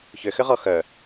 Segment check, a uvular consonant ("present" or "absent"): present